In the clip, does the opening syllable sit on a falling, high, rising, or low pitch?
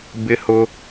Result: high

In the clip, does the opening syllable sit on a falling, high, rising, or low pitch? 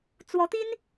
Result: rising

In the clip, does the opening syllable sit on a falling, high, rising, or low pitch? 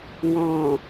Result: low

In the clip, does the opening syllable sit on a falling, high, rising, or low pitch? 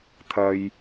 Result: low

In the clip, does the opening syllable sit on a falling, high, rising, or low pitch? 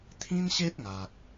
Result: high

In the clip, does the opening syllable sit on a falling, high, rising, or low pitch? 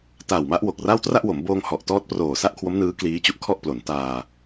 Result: low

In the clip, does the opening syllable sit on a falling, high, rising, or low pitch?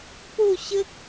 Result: falling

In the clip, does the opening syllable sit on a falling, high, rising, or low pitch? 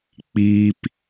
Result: high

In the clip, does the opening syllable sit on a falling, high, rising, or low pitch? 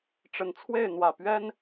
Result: low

